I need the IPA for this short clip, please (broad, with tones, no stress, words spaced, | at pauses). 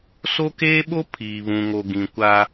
so˦keː˦ɓo˦ pʰiː˨βũ˨ŋo˨ ɡĩ˨kʷa˦